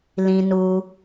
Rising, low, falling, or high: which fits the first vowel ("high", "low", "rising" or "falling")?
low